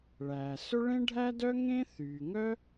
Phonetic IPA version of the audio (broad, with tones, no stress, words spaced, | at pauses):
ɭæː˩sɵ˥ ɭẽ˥ɖʱæ˥dœ˥ ŋẽ˥ θyː˩ŋœ˥